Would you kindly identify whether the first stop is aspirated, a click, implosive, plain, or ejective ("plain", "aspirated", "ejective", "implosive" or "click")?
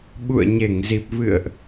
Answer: implosive